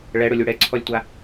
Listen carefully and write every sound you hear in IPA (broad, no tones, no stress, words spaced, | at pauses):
ɭɛɽʊlʲu ɽɛǀʰɔlʲtʷa